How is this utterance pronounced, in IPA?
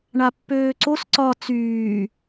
ɳapːøːǀos ǀɒ t͡syː

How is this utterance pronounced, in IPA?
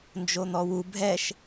nd͡ʒon̪ɔwu bʱɛʃ

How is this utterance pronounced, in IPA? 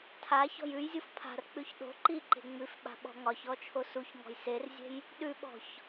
tʰa çɔ̤jʉjzʲuf pʰa̤rk͡pʉç ɗo̤ ǃi ǃe̤ŋ͡mʉfɓa̤ ɓɔ̤ŋɒçɔ t͡ʃʰosuçŋɔ̤j serzʲe̤j | ɗʉɓɔ̤ç

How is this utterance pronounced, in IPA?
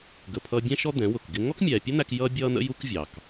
ɡə˨pʰʌː˧bʲɛ̃˦ʃɔ˦ d̪ɛ̃˨˦wʊ˨kɡɪ˦ ŋɔ˦kmʲɛː˨pʲʊ˦n̪æ˧k jʌ˦ bʲʌː˦n̪ə̰˦ju˦kvʲɑ˨k

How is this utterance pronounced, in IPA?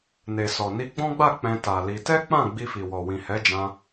ne˨sɔ˨ ni˧ɡ͡bɔ̃˦ɡ͡ba˦˨ k͡pɛ̃˧ta˨ li˧ tɛ˦k͡pã˦˨ ɡ͡bi˧fi˨wɔ˨wĩ˨ hɛ˨˦d͡ʒã˧

